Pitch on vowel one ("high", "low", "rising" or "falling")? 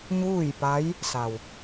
falling